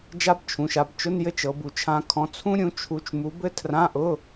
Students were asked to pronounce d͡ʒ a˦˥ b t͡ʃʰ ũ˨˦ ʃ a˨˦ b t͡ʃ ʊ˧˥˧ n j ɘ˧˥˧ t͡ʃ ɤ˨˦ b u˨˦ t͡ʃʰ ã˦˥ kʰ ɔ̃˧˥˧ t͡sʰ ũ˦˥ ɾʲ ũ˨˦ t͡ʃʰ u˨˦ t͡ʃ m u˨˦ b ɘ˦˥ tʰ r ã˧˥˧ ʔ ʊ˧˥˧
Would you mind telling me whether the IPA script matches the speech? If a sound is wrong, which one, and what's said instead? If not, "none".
none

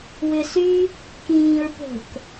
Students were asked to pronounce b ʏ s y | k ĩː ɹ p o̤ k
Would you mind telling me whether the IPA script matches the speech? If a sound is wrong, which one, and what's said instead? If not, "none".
b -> w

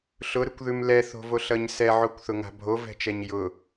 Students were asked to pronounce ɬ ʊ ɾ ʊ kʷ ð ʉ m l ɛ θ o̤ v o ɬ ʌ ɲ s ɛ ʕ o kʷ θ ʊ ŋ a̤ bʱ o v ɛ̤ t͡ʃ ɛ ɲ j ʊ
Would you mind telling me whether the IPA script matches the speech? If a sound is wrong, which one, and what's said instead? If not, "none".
none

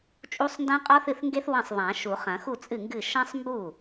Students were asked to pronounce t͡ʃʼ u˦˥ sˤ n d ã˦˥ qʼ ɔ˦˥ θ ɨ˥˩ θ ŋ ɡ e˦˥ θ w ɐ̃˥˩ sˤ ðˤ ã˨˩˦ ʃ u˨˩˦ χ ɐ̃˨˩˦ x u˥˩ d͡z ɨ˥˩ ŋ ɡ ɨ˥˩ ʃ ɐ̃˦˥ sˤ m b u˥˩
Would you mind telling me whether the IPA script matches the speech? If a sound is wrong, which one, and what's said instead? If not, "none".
d͡z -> t͡sʼ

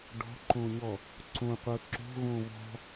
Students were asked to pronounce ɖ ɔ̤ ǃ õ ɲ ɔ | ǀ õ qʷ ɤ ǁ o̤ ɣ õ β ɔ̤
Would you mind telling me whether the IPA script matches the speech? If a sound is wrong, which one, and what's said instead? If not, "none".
none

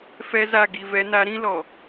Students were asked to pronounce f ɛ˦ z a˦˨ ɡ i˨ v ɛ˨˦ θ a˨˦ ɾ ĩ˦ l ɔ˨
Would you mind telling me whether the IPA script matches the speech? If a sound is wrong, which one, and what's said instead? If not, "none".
θ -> n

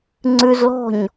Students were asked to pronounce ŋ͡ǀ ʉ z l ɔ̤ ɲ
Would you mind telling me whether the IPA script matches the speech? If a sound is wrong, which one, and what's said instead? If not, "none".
none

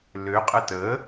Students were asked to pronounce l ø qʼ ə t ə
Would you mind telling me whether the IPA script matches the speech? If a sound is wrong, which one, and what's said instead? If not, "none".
none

